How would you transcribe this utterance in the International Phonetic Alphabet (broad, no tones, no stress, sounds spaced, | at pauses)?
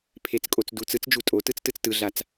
pʰ e t͡s kʼ o t͡s d u t͡s ɯ t͡s d͡ʒ u tʼ o t ɯ t͡s t ɯ t͡s t ɯ ɮ a t͡s